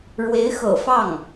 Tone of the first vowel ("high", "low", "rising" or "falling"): rising